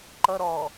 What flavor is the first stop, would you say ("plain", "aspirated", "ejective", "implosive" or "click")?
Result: click